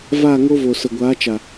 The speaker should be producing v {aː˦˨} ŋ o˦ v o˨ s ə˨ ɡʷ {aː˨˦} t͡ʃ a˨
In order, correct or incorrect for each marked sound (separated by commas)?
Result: correct, correct